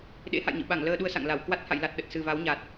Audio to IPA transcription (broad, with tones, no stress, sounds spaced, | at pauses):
ɗ ḛ˧˥ h a̰˧˨ j ɲ ɨ̰˧˨ ɓ a˧˩ ŋ l əː˧ ɗ u˧ ə̯ s a̰˧˨ ŋ l a˧˩ w k w a˦˥ t̚ h a̰˧˨ j l a˨˩ t̚ ɗ ə˨˩ t̚ s ɨ˨˩ v a˨˦ w ɲ a˨˩ t̚